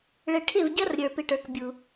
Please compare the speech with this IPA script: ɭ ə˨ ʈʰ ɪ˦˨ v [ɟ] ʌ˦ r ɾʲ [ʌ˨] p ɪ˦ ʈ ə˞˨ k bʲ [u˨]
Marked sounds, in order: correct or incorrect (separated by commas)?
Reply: correct, incorrect, correct